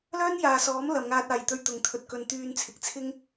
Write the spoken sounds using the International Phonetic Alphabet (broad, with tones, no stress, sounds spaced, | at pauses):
l œː˥ n j aː˨ s ɔː˨˥ m l ɐ˨ m ŋ aː˧ t̚ aː˨˩ j t̪ ɵ˧ ɥ t̪ ʊ˨ ŋ t̪ʰ ɵ˧ t̚ k ɵ˧ n t̪ yː˧ n t͡sʰ ɪ˨ k̚ t͡sʰ ɪ˥ ŋ